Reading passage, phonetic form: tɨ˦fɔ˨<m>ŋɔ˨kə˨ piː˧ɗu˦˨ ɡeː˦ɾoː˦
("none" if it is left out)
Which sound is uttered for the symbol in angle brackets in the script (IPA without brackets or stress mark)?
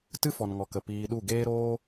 n